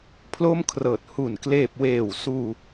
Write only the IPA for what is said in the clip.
pʰ l o˥˩ m kʰ r ɤː˨˩ t̚ h u˨˩ n k l eː˨˩ p̚ w eː˨˩ w s uː˧

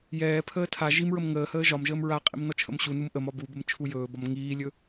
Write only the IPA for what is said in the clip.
j ɛː pʰ əː tʰ a ʒ i m ɹ ə m ŋ əː h əː ʒ ɒ m ʒ əː m ɹ a qʼ ḭ m n ɔ t͡ʃʰ ə̰ m ɕ u n u m ʔ ə m ɒ b u b ə m t͡ʃʰ u j ɵː b ɒ m ŋ iː lʲ ɵ

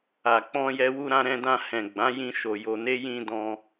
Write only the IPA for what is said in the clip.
a˨ k͡p ɔ̃˧ j ɛ˧ w u˧ ɾ ã˧ ɾ ɛ̃˧ d ã˧ h ɛ̃˨ ɡ͡b ã˨˦ j ĩ˧ ʃ o˨ j o˧ n e˦ j ĩ˧ d ɔ̃˧

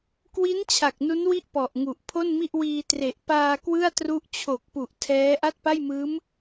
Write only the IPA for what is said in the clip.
k w i˦˥ n t͡ɕʰ a˨˩ k̚ n u˦˥ n w i˥˩ ʔ p ɔ˨˩ ʔ ŋ u˨˩ ʔ pʰ o˥˩ n m i˥˩ ʔ w iː˧ t r e˨˩ ʔ p aː˧ k w ɯ˥˩ a̯ t r u˦˥ ʔ t͡ɕʰ o˨˩ k̚ p u˨˩ ʔ tʰ ɛː˦˥ ʔ a˥˩ t̚ p a˥˩ j m ɯː˦˥ m

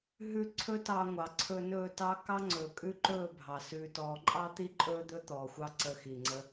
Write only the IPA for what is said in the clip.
ɦ ʉ˧ ǀʰ ɵ˦ t ɑ˧ ŋʷ ɑ˨ ǀʰ ɵ˧ n ɵː˦˨ t ɑ˦ k ɑ˦ ŋ͡ǀ ɵː˨ kʼ ʉ˦ ǃ ɵː˦˨ bʱ ɑ˨ s ʉː˧ t ɔː˧ ǃʼ ɑ˦ t̪ i˦ ǃʼ ɵː˦ d̪ ɵ˦ t̪ ɔː˨ xʷ ɑ˦ ǀ ə˧ x i˨ ŋ͡ǀ ə˦

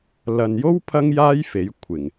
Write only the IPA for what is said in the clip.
l ɐ˨ n j o˥ w pʰ ɐ˥ ŋ j aː˥ j f e˨˥ j kʷʰ ɪ˨˩ ŋ

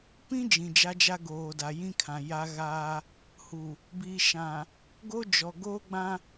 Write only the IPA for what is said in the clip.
p ĩ˦ d͡ʒ ĩ˨ d͡ʒ a˦ d͡ʒ a˦ ɡ oː˨ d a˨ j ĩ˦ kʰ ã˨ j a˦ ɣ aː˦ | h u˨ | b i˨ ʃ ã˨ | ɡ o˦ d͡ʒ ɔ˨ ɡ o˦ ɡ͡b ã˦

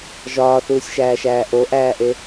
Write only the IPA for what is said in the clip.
ʒ ɒː θ uː sʲ ʃ æː ʃ æː ʔ o ʔ æː ʔ e

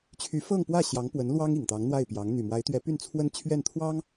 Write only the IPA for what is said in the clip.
t͡ɕʰ y˧˥ f ɤ˥˧ ŋ p w ä˥˩ ɕ j ɑ˧˥ ŋ p w ə˧˥ n l w ɑ˥ ŋ i˨˩ ŋ t̪ ɑ˧˥ ŋ n̪ w a˥˩ ɪ̯ p j ɑ˧˥ ŋ n̪ y˨˩ m w a˧˥ ɪ̯ t̪ ɥ ɛ˧˥ p y˥˩ n t͡sʰ w ə˥ n t͡ɕʰ ɥ ɛ˥˩ n t̪ʰ w ɑ˥ ŋ

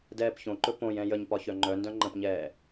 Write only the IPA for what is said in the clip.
d ɛː p ç õ ǃ ɵ p õ j ɛ̃ j ə ɲ p ɒ ç œ ŋ͡ǃ œ n d œ̃ ŋ͡ǃ ə̃ p ɲ ɛː

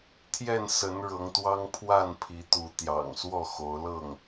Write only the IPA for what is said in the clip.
t̪ʰ j ɛ˥˨ n s ə˨˦ n ɻ ɤ˨˦ ŋ t̪ w ɑ˦ ŋ pʰ w a˥˨ n pʰ i˨˦ t̪ u˨˦ t̪ j ɑ̰˨˩ ŋ s w ɔ˥˨ x o˨˦ ʊ̯ l ɤ˥˨ ŋ

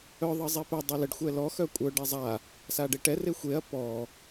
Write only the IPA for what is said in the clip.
œ ðˤ ə zˤ i p ɛ dˤ œ l ə ɖ xʷ ɛ l ɔ x œ kʷʼ œ ɖ ɛ zˤ a | s a ɖ e ʈ ɛ r e xʷ e ɐ̯ p ɔ

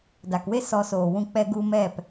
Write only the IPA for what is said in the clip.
d a˨ k w e˦ s ɔ˧ s oː˨ w ũ˧ k͡p ɛ˧ ɡ u˧ m ɛ˦˨ p

